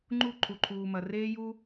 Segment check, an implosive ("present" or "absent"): absent